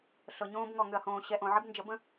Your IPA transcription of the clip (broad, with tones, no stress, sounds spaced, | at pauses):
ɬ ɤ˨ ɲ õː˦ b ŋ ɔ˨ ŋ ʏ˨ ɐ̯ h õː˨ ɕ ɛ˨ ʔ õ˨ ʕ ə˦ b n d͡ʒ ə˨˦ b ə̃˦